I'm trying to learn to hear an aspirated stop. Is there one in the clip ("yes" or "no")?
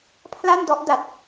yes